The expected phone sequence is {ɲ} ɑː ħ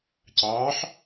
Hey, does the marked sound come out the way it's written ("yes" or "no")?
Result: no